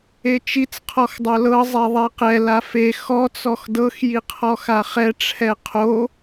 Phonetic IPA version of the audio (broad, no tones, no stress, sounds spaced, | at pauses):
e t͡ʃ i t͡s qʰ ɔ x dˤ o l ɤ zˤ e ðˤ e q ɛ l a f e x ɔ t͡s ɔ x d ɤ x j i qʰ ɔ x a χ ɛ ʈ͡ʂʰ ɛ qʰ o